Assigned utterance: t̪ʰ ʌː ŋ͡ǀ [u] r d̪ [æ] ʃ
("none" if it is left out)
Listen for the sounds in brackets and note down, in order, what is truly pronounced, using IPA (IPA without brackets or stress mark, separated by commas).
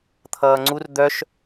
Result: u, œ